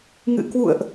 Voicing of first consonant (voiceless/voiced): voiced